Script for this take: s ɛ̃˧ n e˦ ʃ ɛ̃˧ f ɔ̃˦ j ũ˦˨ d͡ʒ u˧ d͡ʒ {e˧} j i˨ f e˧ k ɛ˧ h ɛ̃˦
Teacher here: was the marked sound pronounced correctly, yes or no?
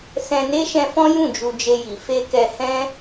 yes